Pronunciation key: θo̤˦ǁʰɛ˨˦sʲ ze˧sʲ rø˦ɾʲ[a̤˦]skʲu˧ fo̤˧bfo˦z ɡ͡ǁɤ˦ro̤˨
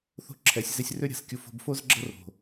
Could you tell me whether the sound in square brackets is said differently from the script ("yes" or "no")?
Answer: yes